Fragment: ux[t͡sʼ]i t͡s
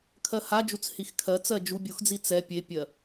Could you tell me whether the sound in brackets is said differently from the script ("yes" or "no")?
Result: yes